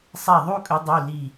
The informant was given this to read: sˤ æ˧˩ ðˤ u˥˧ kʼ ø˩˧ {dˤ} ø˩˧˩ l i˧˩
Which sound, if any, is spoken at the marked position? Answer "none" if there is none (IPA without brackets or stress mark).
dˤ